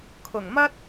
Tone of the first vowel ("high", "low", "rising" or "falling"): low